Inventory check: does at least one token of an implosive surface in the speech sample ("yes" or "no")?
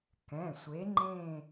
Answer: no